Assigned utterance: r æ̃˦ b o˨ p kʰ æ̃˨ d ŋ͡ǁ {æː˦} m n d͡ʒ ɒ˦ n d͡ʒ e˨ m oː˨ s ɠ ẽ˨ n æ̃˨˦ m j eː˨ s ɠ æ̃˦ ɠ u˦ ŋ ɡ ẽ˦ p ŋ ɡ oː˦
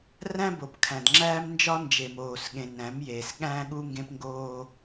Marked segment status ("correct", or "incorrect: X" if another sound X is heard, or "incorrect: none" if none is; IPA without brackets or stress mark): correct